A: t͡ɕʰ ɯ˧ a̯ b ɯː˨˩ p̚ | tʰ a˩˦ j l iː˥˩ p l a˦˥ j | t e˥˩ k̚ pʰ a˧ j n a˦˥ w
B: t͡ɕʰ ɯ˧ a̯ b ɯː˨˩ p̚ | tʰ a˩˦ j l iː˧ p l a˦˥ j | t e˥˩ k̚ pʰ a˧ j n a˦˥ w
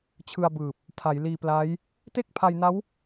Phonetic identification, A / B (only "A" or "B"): B